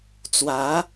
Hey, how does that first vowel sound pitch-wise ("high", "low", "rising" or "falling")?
rising